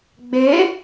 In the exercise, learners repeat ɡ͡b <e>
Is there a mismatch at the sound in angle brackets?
no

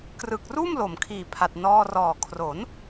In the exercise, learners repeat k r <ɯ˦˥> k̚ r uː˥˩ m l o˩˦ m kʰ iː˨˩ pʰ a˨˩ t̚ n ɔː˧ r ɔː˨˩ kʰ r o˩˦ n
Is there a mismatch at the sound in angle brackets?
yes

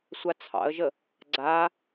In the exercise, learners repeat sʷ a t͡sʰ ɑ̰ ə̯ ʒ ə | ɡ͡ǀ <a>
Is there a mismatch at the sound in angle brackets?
no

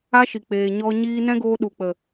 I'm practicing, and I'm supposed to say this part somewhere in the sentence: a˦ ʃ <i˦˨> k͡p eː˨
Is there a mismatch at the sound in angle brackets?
yes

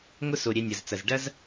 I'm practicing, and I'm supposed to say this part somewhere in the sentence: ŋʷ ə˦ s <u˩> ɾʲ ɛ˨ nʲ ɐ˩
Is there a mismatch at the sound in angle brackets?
yes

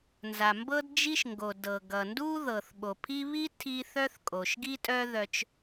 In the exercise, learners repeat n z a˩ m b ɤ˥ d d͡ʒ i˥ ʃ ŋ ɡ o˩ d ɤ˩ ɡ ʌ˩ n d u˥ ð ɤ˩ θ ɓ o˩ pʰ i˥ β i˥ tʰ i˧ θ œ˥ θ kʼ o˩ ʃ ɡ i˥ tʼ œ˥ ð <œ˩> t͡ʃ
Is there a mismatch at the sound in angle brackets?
yes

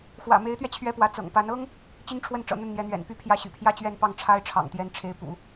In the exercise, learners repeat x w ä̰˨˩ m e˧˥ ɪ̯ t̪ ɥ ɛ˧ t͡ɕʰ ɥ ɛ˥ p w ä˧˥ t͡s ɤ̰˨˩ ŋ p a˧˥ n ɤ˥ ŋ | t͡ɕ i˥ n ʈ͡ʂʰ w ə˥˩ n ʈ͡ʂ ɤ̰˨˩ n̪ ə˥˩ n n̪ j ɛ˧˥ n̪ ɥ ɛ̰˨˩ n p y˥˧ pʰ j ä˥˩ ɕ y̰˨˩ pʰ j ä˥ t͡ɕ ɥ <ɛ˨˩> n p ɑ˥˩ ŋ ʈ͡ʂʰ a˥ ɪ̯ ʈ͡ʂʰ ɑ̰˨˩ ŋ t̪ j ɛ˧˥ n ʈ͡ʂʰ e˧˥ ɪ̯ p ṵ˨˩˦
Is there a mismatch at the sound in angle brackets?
yes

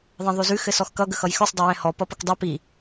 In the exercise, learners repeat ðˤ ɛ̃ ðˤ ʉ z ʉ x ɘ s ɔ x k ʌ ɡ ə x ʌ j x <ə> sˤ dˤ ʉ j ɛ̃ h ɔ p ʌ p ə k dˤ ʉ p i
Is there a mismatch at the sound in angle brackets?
yes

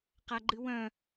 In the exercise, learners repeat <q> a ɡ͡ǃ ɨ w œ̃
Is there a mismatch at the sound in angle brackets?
no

